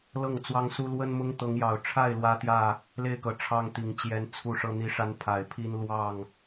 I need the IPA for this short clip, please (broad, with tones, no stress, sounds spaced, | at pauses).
l ɤ˥˨ ŋ t͡s w ɑ˦ ŋ s u˦ l w ə˦ n m ʊ˦ ŋ t̪ ɤ˨˦ ŋ j ɑ˨˩ ʊ̯ ʈ͡ʂʰ a˥˨ ɪ̯ l w ä˦ t̪ j ä˥˨ | l e˥˨ ɪ̯ k ɤ˨˦ ʈ͡ʂʰ ɑ˦ ŋ t̪ i˨˩ ŋ t͡ɕ j ɛ˦ n t͡sʰ u˥˨ ʂ ɤ˦ n̪ i˦ ʂ a˦ n pʰ a˨˩ ɪ̯ pʰ i˦ n l w ɑ˥˨ ŋ